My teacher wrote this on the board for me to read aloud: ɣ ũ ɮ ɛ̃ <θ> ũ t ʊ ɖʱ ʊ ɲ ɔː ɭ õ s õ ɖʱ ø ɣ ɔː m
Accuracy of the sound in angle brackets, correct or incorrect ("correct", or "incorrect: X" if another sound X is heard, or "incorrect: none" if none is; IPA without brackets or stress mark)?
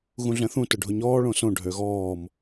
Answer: correct